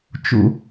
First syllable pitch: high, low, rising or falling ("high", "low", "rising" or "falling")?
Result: high